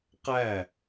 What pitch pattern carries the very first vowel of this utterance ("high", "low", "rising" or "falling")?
falling